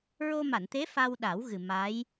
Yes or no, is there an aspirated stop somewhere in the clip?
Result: no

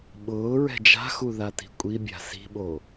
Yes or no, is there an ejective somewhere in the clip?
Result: yes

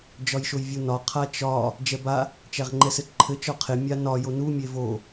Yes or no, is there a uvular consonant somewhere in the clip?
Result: yes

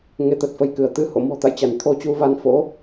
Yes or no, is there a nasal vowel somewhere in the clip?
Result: no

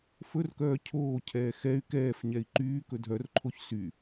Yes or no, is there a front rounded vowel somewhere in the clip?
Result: yes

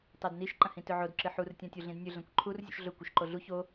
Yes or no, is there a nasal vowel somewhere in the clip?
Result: yes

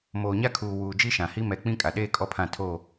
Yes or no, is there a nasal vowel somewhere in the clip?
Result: yes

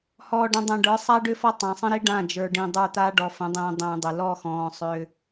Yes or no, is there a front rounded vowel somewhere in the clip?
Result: yes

